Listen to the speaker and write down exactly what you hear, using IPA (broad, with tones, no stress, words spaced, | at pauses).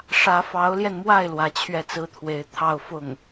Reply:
ʂä˧˥fɑ˧˥ʊ̯ljɛ˧nmwa˥˩ɪ̯ lwä˧˥t͡ɕʰɥɛ˥˩t͡sɹ̩˥t̪ʰwe˧˥ɪ̯ t̪ʰɑ˥˧ʊ̯fʊ˥˩ŋ